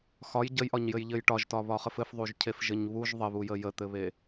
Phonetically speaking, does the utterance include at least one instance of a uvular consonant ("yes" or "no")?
yes